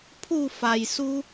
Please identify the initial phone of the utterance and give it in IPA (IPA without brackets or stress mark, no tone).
pʰ